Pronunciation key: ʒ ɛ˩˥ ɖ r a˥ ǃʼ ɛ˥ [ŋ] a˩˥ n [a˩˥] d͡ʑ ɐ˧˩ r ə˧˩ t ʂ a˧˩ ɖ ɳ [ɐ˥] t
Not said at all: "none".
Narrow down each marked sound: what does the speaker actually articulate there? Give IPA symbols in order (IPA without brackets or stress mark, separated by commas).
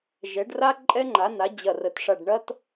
ŋ͡ǃ, a˩˥, ɐ˥